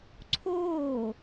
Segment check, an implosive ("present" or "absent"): absent